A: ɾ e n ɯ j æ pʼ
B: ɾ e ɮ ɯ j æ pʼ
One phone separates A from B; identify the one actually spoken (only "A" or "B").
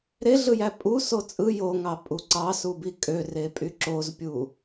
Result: B